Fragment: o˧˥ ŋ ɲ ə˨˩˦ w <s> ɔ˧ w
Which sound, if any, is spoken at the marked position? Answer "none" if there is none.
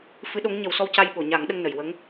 s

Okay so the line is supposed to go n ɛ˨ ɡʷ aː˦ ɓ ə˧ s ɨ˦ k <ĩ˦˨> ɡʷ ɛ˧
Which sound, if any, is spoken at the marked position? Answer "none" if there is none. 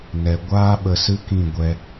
ĩ˦˨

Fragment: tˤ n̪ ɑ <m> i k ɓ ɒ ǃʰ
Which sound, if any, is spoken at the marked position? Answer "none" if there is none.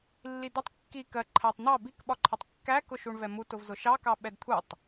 b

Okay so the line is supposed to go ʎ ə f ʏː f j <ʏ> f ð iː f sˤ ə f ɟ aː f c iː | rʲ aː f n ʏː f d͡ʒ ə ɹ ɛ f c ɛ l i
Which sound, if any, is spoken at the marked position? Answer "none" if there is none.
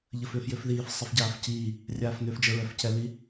ʏ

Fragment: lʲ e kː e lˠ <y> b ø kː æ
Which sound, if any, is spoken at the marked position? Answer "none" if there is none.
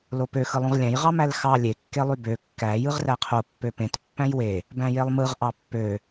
y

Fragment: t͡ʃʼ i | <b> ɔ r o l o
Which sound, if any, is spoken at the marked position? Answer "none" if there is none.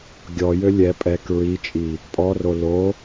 pʼ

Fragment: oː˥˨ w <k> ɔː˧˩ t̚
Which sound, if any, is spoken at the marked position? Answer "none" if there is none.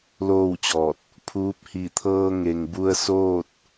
t͡ɕ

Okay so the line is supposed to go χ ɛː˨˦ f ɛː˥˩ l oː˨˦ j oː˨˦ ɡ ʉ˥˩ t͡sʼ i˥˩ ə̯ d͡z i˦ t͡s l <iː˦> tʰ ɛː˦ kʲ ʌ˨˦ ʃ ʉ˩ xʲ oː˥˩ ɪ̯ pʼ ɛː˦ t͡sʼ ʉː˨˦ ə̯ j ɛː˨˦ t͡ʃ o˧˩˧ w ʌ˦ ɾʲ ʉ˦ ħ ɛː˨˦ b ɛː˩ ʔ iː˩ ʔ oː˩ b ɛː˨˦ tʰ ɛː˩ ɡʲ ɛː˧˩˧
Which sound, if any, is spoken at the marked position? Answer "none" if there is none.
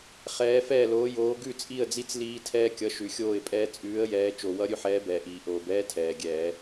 iː˦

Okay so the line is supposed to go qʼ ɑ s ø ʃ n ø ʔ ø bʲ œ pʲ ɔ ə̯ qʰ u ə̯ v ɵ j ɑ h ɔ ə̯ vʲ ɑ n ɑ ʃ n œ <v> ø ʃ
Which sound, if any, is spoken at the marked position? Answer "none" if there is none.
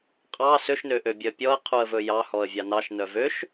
v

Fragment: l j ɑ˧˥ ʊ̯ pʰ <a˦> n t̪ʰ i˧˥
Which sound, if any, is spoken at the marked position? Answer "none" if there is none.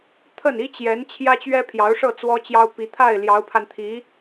a˧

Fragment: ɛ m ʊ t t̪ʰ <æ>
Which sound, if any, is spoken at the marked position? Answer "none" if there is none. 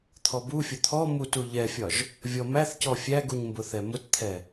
ɛ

